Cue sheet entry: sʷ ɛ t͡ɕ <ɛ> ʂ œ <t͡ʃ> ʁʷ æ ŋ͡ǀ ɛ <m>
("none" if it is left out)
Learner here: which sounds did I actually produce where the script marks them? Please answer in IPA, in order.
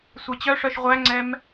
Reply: œ, ʃ, m

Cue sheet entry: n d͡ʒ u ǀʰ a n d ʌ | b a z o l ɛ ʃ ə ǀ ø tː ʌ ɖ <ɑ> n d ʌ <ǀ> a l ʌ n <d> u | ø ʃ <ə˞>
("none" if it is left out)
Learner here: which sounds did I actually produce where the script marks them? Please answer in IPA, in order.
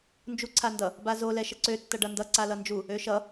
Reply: ʌ, ǀ, d͡ʒ, ʌ

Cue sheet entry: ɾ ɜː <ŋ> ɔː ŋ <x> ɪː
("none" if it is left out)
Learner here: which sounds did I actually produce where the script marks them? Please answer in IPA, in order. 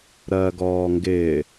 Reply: ɡ, ɡ

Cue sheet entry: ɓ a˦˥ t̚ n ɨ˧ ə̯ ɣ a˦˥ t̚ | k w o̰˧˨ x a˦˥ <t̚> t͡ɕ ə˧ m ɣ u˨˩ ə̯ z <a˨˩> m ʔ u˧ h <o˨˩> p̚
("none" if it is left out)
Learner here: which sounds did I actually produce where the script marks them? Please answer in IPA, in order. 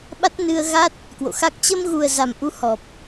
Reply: k̚, a˨˩, ɔ˨˩

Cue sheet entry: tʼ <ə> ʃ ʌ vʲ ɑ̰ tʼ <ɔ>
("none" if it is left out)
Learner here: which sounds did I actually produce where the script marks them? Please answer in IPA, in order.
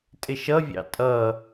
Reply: ɪ, ʌ

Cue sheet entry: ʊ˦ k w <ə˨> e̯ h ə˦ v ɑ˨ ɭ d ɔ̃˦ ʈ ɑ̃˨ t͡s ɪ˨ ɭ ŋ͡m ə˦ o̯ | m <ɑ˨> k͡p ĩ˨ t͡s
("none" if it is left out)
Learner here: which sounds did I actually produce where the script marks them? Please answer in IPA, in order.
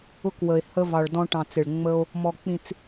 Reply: ə˨, ɔ˨

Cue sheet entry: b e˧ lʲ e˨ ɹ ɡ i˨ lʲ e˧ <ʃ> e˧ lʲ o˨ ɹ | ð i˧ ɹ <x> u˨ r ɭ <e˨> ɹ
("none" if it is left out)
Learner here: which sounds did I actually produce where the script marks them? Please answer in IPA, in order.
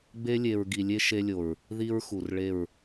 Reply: ʃ, x, e˦˨

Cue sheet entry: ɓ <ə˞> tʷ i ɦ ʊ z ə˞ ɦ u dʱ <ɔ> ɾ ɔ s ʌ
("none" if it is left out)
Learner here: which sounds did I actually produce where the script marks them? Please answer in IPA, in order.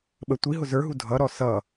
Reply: ə, ʌ

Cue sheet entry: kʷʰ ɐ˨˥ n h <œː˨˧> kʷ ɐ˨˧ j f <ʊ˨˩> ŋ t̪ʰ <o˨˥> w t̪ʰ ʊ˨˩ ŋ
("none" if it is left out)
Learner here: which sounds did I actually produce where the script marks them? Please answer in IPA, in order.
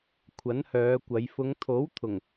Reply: œː˨˧, ʊ˨˧, o˨˥

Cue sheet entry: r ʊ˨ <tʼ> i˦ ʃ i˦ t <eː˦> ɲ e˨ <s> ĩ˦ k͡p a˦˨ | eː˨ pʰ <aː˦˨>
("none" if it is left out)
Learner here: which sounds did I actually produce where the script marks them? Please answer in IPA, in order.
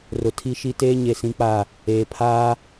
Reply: tʰ, eː˦, s, aː˦

